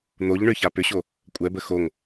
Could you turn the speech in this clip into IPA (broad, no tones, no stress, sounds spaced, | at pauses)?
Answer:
n̪ o ʎ ɳ ʏ ç a p ʏ ɕ o | kʷʼ ɛ b ə x o ŋ